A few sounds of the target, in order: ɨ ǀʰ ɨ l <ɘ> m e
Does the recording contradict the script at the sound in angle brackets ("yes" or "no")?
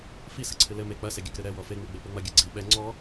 no